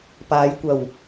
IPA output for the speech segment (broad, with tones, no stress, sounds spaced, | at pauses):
p aː˨˧ j kʷ ɐ˨˩ w